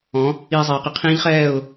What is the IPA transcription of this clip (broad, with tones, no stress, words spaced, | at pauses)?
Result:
ɔ̃˨˥ | iː˧ zˤiː˩˧qi˩˧ qʰĩː˦˥ʎχɛː˥˨ʊ̯